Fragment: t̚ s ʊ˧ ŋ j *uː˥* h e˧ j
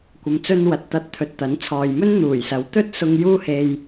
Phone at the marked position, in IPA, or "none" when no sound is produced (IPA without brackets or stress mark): uː˥